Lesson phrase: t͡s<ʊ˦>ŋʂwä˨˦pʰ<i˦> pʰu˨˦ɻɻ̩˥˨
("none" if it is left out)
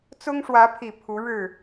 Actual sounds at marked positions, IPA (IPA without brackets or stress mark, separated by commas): ʊ˦, i˨˩